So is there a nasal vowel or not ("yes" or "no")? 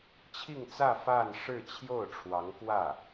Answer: no